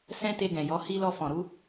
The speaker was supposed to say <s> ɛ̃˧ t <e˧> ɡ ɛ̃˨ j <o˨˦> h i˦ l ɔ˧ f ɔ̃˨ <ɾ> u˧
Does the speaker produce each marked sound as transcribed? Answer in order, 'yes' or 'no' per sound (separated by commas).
yes, yes, no, yes